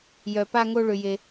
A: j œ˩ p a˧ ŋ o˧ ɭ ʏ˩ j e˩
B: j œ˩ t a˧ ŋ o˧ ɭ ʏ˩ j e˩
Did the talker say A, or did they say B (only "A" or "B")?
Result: A